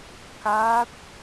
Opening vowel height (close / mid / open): open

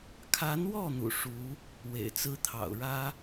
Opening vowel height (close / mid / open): open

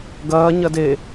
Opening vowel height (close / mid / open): open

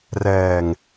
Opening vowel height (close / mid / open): mid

